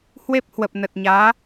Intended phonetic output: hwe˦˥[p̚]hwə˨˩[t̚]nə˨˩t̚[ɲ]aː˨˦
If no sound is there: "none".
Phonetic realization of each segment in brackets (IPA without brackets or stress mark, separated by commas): p̚, p̚, ɲ